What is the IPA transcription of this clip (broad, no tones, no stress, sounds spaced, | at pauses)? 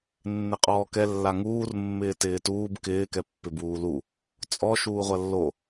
nː ɪ qʼ ɔː k ɛ lː a ŋ uː r mː ɪː t ɪː t uː b k ɪː k ɛ pː ɪ b uː l u | t͡sʼ ɔ ʃ uː ʁʷ ɐ lː o